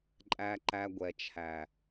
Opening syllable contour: low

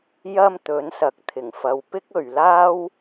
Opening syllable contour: high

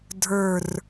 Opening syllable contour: falling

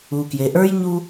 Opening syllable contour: low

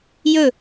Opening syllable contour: falling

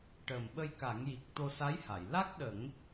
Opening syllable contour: low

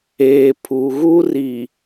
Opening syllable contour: low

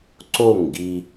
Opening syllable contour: falling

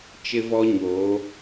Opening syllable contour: high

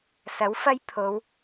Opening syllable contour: rising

